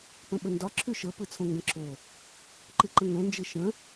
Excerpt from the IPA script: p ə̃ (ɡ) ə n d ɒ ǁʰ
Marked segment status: incorrect: ɓ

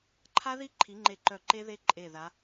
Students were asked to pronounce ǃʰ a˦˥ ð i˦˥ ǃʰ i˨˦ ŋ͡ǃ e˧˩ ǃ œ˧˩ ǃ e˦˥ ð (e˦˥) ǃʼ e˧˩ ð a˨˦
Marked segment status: correct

